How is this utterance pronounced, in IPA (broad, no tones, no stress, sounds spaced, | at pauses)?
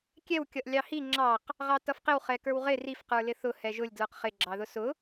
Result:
kʲ ɛ w kʲ ʌ ʔ lʲ ɑ h i ŋ͡ǁ ɑ q | ʁ ɑ t ʌ f q ɪ w χ ɛ k ə˞ w ʁ ɪ r i f q ə˞ l ɪ θ ʊ h ɛ ʒ ʊ lʲ d l ə˞ q χ ɪ ɡ͡ǁ ɑ ð ʊ s ʊ